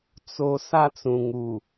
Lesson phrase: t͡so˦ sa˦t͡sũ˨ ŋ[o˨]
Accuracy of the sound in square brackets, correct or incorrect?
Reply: incorrect